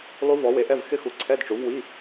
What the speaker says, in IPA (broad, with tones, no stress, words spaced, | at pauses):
lˠu˦˥vɔ˨˥ we˨˥ʔɛ˧˥˧v xɪ˦˥xu˨˥ ǀʰɛ˧˥˧dʈ͡ʂu˨˥vwi˧˥˧